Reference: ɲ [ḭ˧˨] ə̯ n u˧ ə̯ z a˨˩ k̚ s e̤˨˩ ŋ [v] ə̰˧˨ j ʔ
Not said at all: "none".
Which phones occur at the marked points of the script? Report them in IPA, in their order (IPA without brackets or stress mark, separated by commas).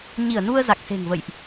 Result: i˧˩, v